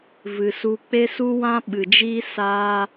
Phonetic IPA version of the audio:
vɨ˨su˧ k͡pe˦su˦wã˦ ɓɨ˨d͡ʒiː˦ saː˦

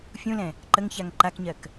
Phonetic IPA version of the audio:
fʲũlɛ̃ | ǃəŋçaŋ ǃakɲɜk

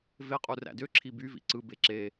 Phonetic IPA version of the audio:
veqʼu ræ̰dø ǁʰiby vḭǀɯ beǁe

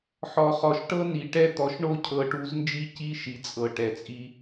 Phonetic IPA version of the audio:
ħɔ˨χɔ˨ʃʈɤ˦ni˨ ʈɛ˦˨t̪ɔ˨ʃ ɳo˦˨cʰɤ˨ʈu˨˦znd͡ʒi˦ ci˦ʃi˨t͡sʼɤ˨ ʈɛ˨t͡sʼi˦

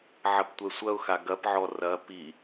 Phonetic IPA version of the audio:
ʕɐptʷɛsʷɐʊ̯xa ɡɐpʕɔ rɐ pi

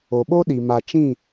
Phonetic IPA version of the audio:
o˨ɓo˦ɗi˨ma˨ t͡ʃĩ˦˨

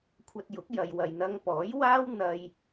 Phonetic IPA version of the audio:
kʷʰɐ˧t̚jʊ˨˥k̚jɐ˨j wɐ˨jn̪ɐ˧ŋpɔː˨˥j waː˥w n̪ɐ˧j

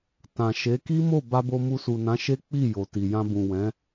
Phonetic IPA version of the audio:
tã˨ʃe˨˦ ki˦mo˦˨ ba˧bo˧ mu˧su˨nã˨˦ʃe˦ k͡pi˦˨ jo˨ti˨ jã˧bũ˨wɛ̃˨˦

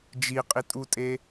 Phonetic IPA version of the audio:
d͡ʒiqʼitʼutʼe

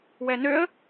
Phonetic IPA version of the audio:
wɛnøə̯

